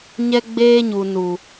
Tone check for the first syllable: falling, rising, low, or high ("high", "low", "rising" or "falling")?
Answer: high